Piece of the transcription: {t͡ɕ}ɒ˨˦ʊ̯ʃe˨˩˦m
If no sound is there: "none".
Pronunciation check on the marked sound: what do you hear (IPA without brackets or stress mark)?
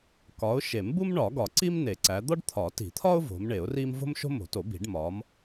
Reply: k